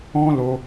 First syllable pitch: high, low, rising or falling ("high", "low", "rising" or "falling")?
high